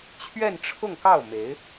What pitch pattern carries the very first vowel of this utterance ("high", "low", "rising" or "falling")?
falling